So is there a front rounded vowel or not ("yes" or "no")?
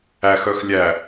yes